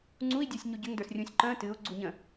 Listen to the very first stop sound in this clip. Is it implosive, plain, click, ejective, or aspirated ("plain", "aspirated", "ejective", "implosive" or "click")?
click